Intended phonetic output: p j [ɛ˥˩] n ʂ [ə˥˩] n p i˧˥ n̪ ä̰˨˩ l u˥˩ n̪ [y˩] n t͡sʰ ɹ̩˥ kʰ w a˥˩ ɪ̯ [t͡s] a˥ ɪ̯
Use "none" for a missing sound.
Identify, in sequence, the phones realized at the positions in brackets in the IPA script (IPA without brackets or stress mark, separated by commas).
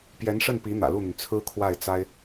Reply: ɛ˧˥, ə˥˩, y˩, t͡s